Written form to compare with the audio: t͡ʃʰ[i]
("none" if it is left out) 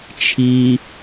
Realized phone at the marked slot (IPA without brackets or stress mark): i